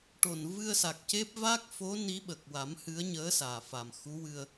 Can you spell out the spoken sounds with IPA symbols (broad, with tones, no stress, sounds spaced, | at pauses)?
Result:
ʈ o˨˩ n v ɨ˧ ə̯ s a˨˩ k̚ c e˦˥ p̚ v a˦˥ k̚ f o˧˥ n i˧˥ ɓ ə˨˩ k̚ w a˨˩˦ m h ɨ˧˥ ə̯ ɲ əː˧˥ s aː˨˩ f a˨˩ m x u˧˥ w ɨ˧ ə̯